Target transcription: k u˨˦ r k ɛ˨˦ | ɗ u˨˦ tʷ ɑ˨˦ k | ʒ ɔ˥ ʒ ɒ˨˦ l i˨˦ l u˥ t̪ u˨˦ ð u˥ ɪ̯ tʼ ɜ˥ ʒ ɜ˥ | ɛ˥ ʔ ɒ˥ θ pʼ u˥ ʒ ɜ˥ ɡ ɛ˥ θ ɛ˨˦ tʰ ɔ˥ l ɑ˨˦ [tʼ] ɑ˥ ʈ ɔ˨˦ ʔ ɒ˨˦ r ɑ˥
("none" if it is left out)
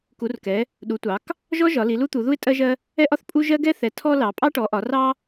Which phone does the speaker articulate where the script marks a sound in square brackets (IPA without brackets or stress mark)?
pʼ